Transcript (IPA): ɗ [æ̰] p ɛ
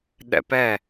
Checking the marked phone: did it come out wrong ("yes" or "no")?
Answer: yes